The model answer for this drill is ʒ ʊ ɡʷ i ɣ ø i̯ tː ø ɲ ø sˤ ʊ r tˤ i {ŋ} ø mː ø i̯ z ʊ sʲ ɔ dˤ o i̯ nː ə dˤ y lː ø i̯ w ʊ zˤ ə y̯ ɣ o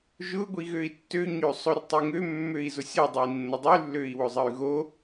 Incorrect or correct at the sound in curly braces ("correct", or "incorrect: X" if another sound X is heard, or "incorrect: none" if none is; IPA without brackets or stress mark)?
correct